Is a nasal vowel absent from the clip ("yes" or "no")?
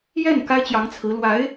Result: yes